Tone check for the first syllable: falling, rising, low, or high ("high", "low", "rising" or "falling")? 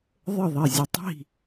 falling